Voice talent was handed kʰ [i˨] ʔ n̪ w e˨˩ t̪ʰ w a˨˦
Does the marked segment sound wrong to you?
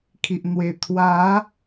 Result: no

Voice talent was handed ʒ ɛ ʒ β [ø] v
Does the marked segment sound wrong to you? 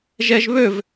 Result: no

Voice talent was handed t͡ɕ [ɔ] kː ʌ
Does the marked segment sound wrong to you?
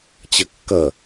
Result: yes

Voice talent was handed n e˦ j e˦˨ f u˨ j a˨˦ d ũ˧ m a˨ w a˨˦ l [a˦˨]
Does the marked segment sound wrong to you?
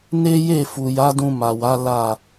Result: no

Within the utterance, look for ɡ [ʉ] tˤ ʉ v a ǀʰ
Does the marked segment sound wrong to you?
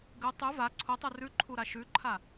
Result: no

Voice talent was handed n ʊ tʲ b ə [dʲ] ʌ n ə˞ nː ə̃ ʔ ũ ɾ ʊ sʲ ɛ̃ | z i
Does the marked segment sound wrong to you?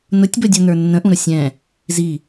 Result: no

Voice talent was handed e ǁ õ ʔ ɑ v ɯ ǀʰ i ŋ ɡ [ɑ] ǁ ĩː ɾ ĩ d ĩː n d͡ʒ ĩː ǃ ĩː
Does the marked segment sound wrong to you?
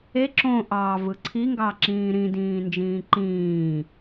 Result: no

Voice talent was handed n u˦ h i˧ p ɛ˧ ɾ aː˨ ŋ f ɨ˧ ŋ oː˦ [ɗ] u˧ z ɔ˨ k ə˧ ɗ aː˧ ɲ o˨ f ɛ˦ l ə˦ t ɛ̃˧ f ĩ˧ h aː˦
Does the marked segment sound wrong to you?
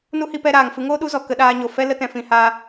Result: no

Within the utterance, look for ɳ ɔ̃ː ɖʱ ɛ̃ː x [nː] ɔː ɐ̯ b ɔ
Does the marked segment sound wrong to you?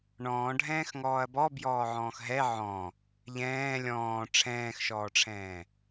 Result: yes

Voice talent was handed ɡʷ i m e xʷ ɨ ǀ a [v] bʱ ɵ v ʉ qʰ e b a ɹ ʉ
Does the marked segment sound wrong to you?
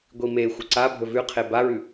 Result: yes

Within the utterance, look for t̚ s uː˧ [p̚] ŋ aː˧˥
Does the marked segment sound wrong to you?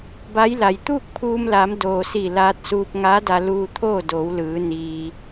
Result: no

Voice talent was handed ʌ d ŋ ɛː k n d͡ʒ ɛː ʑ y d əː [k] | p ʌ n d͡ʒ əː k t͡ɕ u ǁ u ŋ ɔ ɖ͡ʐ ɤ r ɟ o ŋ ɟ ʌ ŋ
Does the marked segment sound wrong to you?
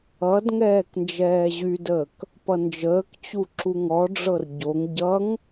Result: no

